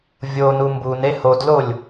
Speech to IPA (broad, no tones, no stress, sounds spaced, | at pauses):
vʲ o n u m b u n e h o d l o lʲ